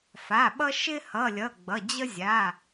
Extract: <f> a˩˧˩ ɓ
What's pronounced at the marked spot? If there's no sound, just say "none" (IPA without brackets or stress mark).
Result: f